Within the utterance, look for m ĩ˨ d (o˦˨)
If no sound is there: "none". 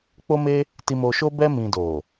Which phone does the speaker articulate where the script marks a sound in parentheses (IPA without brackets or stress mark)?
o˨